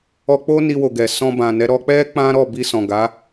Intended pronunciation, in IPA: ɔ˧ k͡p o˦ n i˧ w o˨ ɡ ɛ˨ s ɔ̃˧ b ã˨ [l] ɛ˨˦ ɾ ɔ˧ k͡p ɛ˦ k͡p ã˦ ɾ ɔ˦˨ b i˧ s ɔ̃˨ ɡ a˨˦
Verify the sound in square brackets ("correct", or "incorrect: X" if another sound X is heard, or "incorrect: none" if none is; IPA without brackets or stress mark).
incorrect: n